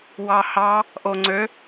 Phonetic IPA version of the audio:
w ɑ h ɑ | ʔ o ŋ͡ǀ ø

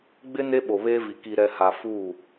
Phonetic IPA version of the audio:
ɡ͡b ɪ˦ n e˦ ɓ o˨ β eː˦ v i˨ k i˨ ɾ ɛ˨ h a˨ f uː˦˨

